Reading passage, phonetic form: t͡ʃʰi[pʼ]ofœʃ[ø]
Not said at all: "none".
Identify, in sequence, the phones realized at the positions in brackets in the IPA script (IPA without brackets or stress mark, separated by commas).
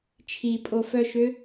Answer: pʼ, ø